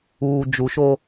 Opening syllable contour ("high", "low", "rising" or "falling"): low